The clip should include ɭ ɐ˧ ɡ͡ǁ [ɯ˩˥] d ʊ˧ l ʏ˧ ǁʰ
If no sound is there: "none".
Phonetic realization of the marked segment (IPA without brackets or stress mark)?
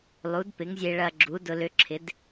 u˩˥